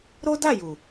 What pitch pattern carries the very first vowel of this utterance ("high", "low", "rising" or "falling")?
high